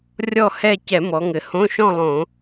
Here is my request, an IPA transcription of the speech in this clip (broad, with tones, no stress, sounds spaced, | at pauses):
rʲ ɔ˥˨ h ɛ˥˨ c ɛ˧˩˧ m ɔ˩˧ ŋ ɘ˩˧ h õ˧˥˧ ʃ ɔ̃˥˨ lˠ õ˧˩˧